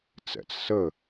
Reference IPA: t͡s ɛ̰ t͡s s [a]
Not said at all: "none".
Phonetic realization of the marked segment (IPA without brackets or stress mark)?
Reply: ə